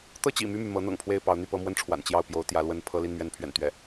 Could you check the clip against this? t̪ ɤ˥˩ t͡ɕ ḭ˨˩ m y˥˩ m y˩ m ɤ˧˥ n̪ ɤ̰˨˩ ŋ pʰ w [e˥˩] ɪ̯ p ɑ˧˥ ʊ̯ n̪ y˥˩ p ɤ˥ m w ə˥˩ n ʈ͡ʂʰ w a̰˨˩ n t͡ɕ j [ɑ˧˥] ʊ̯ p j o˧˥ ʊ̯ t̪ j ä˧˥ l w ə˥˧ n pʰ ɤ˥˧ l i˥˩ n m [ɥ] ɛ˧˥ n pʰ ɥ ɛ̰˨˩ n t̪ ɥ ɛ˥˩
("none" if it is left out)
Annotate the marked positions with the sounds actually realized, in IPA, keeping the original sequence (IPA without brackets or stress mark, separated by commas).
e˥˩, ɑ˥˩, ɥ